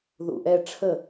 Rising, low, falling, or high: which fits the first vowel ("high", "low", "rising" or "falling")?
low